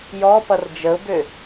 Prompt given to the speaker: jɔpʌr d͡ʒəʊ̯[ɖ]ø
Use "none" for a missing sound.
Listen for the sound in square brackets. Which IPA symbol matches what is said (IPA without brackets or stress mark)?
b